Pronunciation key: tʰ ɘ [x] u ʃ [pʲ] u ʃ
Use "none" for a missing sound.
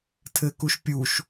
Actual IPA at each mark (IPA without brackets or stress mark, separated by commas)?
k, pʲ